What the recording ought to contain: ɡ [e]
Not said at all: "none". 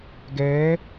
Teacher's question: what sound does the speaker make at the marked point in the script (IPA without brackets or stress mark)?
ɛ